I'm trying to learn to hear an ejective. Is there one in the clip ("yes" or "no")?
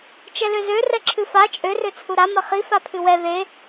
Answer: yes